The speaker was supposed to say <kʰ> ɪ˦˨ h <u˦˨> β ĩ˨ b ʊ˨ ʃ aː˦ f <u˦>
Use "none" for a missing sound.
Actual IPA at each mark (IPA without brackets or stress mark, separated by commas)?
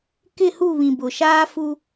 k, u˦˨, u˦